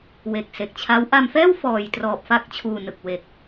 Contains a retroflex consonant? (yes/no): no